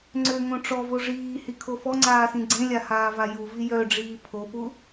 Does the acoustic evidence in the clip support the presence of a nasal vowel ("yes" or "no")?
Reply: yes